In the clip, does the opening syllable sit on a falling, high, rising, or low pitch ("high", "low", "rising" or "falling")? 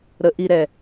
rising